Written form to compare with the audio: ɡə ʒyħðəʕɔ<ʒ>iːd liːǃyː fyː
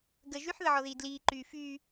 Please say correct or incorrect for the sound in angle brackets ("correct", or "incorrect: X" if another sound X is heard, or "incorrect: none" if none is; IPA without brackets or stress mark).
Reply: incorrect: ð